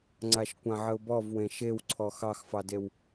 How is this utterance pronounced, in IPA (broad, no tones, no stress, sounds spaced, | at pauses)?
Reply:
ŋ͡ǀ a ʃ kʷ ã ʕ ə ʊ̯ b ɔ v w ẽ ʃ e w ǀʰ ɔ x ɑ x f ɑ d e w